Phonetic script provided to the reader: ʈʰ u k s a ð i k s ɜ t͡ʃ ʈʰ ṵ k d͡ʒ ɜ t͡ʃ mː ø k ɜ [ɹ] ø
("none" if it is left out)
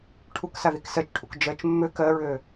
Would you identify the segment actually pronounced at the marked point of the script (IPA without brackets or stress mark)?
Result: ɹ